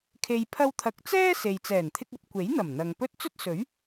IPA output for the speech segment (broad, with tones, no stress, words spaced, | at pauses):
kʰe˨jpʰɐ˧wt̪ʰɐ˨k̚t͡sɛː˥ se˨j t͡sɛː˨˩nt̪ʰɪ˧k̚ɐ˧p̚ kʷe˨˥jn̪ɐ˨˩m n̪ɐ˨ŋpɵ˥t̚ t͡sɵ˥t̚sɵ˨˥ɥ